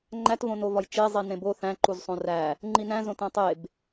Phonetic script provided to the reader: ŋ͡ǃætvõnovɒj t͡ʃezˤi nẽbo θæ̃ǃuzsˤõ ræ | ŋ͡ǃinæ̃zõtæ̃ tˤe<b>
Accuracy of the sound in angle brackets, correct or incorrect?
correct